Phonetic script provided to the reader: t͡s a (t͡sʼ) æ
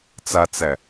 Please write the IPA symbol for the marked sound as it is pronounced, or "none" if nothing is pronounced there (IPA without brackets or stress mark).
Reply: t͡s